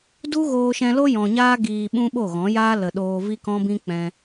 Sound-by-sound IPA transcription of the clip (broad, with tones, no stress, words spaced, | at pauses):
du˦ ɣoː˧ʃɛ̃˧lo˦ jɔ̃˨ɲaː˦ ɡiː˨ ɓũ˦ɓo˦˨ɣɔ̃˨˦ jaː˦lə˨ɗoː˧ vi˦kɔ̃˦bĩ˦ k͡pɛ̃˧